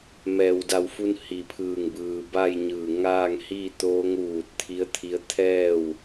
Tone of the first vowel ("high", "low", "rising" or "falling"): low